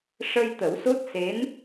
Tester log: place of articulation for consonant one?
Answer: retroflex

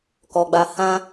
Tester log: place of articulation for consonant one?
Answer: velar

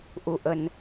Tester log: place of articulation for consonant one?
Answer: glottal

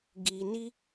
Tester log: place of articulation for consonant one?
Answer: velar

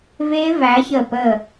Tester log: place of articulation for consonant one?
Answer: labial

